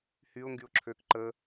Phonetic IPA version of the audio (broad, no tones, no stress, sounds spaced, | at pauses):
h y ʊ̯ ŋ ɡ y ʊ̯ ǁʰ ø k ǃ ə